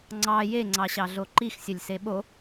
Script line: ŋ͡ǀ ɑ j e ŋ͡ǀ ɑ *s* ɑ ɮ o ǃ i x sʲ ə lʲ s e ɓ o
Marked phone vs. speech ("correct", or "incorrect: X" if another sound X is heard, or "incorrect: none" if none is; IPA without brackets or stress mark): incorrect: ɕ